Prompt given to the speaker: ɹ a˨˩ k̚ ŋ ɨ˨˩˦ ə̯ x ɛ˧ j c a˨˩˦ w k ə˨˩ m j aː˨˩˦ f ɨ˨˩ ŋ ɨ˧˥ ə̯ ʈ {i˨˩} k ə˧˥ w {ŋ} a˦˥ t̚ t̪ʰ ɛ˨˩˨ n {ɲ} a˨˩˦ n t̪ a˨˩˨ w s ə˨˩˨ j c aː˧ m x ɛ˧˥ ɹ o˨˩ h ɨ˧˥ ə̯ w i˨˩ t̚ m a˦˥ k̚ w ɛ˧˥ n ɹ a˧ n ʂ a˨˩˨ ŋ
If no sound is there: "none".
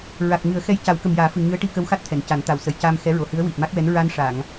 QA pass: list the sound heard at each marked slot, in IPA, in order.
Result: i˧, x, c

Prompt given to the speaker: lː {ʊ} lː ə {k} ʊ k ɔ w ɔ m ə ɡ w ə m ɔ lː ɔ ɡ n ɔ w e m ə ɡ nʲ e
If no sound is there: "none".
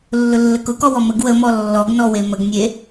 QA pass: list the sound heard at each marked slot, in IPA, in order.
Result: ʊ, k

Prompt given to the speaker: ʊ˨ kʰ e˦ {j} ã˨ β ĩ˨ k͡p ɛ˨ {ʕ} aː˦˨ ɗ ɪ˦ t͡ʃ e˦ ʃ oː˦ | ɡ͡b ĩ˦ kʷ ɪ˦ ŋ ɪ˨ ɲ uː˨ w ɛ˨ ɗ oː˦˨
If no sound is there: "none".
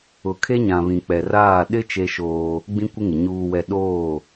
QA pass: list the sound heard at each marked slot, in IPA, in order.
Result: ɲ, r

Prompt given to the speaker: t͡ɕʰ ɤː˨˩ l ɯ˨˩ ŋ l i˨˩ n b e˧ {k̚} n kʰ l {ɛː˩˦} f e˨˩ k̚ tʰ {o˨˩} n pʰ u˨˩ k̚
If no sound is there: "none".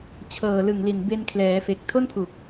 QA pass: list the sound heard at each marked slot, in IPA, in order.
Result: none, ɛː˩˦, o˥˩

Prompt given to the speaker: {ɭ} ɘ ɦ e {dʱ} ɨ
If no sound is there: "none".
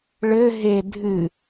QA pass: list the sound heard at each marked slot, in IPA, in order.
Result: ɭ, dʱ

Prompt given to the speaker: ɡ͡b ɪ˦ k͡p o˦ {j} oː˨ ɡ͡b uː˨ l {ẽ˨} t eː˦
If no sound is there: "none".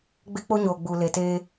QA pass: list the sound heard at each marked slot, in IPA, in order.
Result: ɲ, e˨

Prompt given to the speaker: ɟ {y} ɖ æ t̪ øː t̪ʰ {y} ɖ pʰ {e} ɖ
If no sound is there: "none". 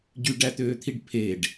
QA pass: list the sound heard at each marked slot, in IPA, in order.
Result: y, i, e

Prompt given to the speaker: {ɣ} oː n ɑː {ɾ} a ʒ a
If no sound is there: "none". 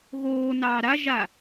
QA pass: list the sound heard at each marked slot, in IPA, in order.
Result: ɣ, ɾ

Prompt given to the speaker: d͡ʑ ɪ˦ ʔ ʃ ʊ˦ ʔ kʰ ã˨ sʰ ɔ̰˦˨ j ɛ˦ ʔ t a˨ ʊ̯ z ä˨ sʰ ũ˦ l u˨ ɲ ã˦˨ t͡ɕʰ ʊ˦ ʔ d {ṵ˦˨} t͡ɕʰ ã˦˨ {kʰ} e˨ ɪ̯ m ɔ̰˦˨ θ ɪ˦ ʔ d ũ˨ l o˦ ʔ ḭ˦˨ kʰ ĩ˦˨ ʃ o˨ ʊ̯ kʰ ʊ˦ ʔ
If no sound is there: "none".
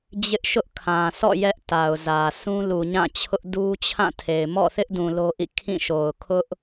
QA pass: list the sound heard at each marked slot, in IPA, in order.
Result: u˦, tʰ

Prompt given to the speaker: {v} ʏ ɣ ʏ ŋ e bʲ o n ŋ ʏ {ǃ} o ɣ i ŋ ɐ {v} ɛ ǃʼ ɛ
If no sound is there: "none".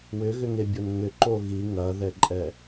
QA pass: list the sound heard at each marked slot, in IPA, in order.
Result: w, ǃ, ð

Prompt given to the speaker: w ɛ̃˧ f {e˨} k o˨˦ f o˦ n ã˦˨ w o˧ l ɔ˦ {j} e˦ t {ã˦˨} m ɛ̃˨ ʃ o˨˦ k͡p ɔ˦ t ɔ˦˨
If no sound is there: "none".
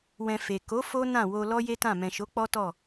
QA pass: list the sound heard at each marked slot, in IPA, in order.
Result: e˨, j, ã˦˨

